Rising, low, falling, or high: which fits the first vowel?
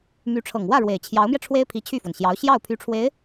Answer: rising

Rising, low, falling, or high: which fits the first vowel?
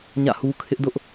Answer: falling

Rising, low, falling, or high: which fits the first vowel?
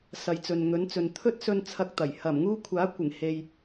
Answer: low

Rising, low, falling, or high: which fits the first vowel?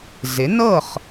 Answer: rising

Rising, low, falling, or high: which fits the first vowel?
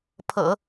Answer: low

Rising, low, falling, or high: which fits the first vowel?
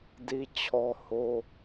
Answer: high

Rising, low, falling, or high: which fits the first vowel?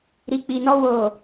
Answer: low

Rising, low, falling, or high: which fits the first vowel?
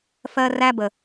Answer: high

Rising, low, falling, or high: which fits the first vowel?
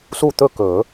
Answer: falling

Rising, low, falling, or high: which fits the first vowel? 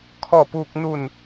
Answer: falling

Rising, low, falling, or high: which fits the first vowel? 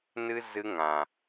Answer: high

